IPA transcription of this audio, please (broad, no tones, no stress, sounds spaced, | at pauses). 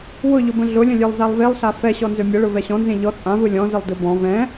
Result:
w ʊ ʎ ʊ b ə̃ ɮ ʊ lʲ ə̃ lʲ e lˠ z a lˠ v e lˠ ɬ a f ɛ ɕ ɔ n z ø mʲ ə ɭ ʊ v ɛ ɕ ɔ̃ n z ẽ ʎ ɔ t͡sʼ ã v ɯ lʲ ɔ̃ z ə lˠ d ɯ b ɔ̃ v ɛ̃